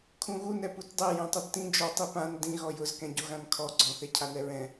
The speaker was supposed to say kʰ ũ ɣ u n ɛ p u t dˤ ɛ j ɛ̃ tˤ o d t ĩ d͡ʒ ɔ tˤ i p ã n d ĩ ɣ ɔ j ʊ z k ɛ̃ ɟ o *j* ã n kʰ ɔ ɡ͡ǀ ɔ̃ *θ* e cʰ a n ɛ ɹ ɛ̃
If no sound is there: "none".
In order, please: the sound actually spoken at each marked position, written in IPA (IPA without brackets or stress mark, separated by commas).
ɣ, θ